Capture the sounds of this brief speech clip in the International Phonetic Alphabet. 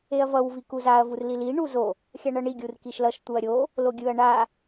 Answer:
e ɐ̯ v ʌ w v i k u z a ɐ̯ v u r l i l i ɳ u z o | xʲ a ɳ ʌ ɳ i ɡʲ u r k i ʃ l ʌ ʃ t̪ u ɐ̯ ɾʲ o | l o ɡʲ ɯ ɐ̯ ɳ a

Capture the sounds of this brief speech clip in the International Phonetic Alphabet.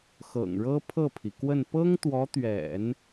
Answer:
x ɤ̰˨˩ ŋ ɻ ɤ˥ pʰ ɤ˥˩ pʰ i˩ k w ə˥˩ n p ɤ˥ ŋ t̪ w ɔ˧˥ t̪ ɥ ɛ̰˨˩˦ n

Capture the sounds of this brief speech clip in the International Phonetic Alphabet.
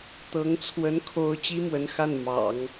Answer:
t̪ ɤ˧˥ ŋ t͡sʰ w ə˧˥ n kʰ o˧˥ ʊ̯ t͡ɕ i˥ m w ə˧˥ n x a˥˩ n m ɑ̰˨˩˦ ŋ

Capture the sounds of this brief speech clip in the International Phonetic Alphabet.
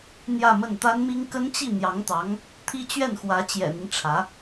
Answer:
n̪ j ä˥˧ m ə˥˩ n t̪ a˥ n m i˥ ŋ k ə˥ n t͡ɕ i˥˩ n̪ j ɑ˧˥ ŋ t̪ ɑ˧˥ ŋ | t̪ʰ i˥ t͡ɕ ɥ ɛ˥˩ n x w ä˧˥ t͡ɕ j ɛ̰˨˩ n̪ i˦ n ʈ͡ʂʰ ä˧˥

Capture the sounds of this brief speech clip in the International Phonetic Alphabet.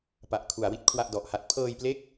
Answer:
p a˨˩ ʔ kʰ u˩˦ a̯ w i˦˥ t̚ kʰ w a˥˩ ʔ d ɔ˨˩ ʔ h a˦˥ t̚ pʰ ɤː˧ j p l e˦˥ k̚

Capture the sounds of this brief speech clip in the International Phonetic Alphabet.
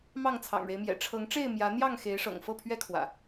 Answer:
m ɑ˥˨ ŋ t͡sʰ ɑ̰˨˩ ŋ ɻ e˦ ɪ̯ m j ɛ̰˨˩ ʈ͡ʂʰ ɤ˨˦ ŋ ʈ͡ʂ e˥˨ ɪ̯ m j ä˨˦ n̪ j ɑ˥˨ ŋ x e˨˦ ɪ̯ ʂ ɤ̰˨˩ ŋ f ɤ˥˨ pʰ ɥ ɛ˦ kʰ w ä̰˨˩

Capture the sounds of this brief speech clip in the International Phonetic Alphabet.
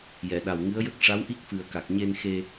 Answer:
j ɛ˨˩˨ ɗ a˨˩ w ŋ ɨ˧˥ ə̯ j ə˦˥ k̚ ʂ a˧˥ w ʔ i˦˥ k̚ f ɨ˨˩ ə̯ k a˨˩ k̚ ɲ e˧ n x e˧

